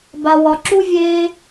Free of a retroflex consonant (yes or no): yes